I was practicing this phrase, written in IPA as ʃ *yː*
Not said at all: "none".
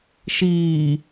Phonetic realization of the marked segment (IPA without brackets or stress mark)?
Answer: iː